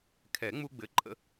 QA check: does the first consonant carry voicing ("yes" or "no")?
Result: no